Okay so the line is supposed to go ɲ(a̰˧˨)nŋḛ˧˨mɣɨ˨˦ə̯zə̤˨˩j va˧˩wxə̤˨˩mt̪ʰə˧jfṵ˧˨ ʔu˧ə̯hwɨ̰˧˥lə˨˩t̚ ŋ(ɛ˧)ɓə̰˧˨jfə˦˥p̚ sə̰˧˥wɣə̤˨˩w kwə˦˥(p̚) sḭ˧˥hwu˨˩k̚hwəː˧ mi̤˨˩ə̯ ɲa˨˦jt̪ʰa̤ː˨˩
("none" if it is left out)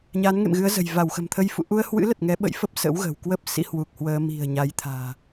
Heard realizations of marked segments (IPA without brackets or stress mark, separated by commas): a˨˦, ɛ˨˦, p̚